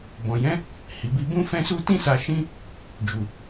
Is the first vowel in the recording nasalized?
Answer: yes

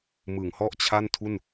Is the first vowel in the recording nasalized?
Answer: no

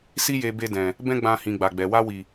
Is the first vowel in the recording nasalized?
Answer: no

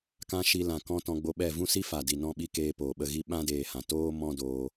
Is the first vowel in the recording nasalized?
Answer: yes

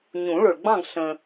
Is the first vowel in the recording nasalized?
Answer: yes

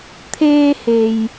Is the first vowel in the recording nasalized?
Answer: no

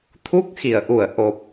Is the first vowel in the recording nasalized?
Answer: no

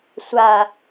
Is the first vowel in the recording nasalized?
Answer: no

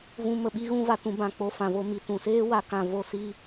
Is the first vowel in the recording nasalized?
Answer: yes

